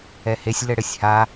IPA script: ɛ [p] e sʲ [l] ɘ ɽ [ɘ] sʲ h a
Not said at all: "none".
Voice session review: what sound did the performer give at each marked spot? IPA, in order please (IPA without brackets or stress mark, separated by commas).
h, l, ɘ